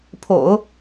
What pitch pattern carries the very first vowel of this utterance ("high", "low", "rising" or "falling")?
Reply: low